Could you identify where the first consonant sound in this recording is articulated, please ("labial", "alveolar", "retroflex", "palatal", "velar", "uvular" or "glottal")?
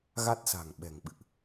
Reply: velar